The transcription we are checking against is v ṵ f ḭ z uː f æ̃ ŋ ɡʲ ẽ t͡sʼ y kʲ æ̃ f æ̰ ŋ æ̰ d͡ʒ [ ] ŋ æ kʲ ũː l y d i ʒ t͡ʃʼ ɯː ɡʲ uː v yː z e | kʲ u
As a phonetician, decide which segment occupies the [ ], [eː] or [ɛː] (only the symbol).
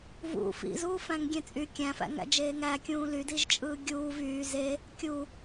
eː